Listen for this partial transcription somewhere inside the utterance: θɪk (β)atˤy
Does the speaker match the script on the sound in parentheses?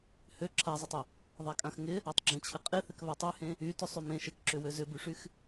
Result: yes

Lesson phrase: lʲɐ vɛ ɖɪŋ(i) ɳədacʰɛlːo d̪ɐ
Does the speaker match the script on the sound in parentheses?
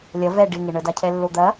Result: no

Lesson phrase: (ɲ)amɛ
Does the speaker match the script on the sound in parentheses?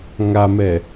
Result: no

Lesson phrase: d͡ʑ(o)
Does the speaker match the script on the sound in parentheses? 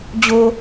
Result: yes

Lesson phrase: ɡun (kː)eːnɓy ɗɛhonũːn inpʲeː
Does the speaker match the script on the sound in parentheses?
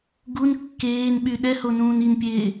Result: yes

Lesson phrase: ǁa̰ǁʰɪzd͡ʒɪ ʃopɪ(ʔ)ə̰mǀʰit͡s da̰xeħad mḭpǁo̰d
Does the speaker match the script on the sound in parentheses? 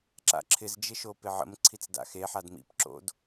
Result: no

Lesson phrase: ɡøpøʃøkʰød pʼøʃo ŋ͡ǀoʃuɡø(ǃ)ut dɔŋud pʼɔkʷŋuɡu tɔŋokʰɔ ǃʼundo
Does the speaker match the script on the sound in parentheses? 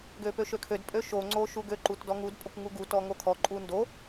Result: yes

